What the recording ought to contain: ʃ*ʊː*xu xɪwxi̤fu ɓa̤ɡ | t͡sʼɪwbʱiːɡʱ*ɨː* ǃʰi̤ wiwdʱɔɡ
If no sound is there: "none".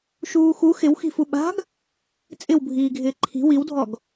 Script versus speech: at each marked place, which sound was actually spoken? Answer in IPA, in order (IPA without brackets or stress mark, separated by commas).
uː, ɪː